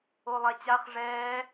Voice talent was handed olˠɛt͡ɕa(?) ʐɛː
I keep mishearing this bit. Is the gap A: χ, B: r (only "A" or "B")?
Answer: A